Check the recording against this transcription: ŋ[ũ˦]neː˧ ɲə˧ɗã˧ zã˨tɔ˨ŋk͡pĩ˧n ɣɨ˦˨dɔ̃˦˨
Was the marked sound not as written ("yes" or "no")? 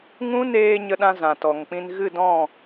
no